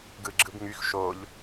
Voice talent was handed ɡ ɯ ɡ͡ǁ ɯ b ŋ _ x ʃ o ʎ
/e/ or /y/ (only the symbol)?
y